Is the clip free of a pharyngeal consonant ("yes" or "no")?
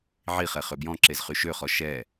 no